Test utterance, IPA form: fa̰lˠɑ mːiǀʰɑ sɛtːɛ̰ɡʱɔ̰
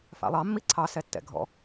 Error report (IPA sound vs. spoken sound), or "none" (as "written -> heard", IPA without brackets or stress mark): none